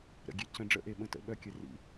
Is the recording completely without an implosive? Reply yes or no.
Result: no